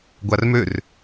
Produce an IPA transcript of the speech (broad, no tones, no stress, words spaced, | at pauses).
ɡʷarmør